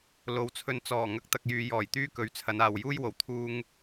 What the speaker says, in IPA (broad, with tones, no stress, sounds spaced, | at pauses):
l o˨˥ w t͡sʰ ɵ˧ n t͡s ɔː˨˩ ŋ ɐ˨˥ k̚ t̪ ɐ˨ k̚ j yː˨ j ɔː˨˩ j t̪ yː˥ k ɵ˨˥ ɥ t͡sʰ ɐ˨˧ n aː˨ w j uː˥ j w o˨˩ w t̪ʰ uː˧ ŋ